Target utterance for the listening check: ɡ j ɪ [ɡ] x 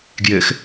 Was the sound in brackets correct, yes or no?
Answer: no